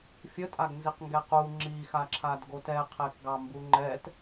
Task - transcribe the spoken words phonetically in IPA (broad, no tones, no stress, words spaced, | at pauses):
fʲətʼaɡnziq ŋɡɛqu ŋ͡ǁixaǁʰadɡot ɛqʰɛkɡɑ mbuŋ͡ǃɛt